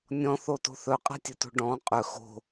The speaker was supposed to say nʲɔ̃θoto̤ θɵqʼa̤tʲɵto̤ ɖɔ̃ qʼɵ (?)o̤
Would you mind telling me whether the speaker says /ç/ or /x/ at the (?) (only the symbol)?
x